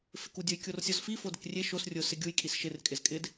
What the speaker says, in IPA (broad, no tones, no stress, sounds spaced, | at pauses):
f ɪ k u dʲ ʊ j kʲ o r sʲ ɔ z f i f o d ɪ k rʲ e ʃ o s rʲ ʊ s ɪ ɡʲ u j kʼ i s ʃ ɪ r kʼ ɪ z kʼ ɪ d